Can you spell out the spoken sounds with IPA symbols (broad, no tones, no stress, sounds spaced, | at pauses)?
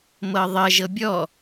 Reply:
m ɤ ðˤ ə ʒ ɤ bʲ ɔ